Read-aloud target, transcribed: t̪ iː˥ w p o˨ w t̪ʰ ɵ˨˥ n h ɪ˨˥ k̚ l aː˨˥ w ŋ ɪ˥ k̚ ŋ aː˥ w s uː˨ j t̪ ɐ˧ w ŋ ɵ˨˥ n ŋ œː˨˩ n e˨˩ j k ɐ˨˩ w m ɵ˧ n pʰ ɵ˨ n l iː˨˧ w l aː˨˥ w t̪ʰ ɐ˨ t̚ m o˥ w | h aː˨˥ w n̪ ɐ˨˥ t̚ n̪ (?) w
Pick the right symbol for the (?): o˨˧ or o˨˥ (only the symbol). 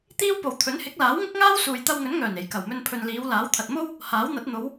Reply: o˨˧